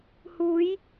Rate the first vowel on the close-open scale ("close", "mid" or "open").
close